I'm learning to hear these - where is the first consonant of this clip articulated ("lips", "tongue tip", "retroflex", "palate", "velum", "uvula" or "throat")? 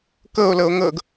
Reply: velum